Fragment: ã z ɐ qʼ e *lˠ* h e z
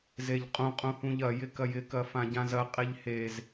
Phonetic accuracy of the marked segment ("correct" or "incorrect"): incorrect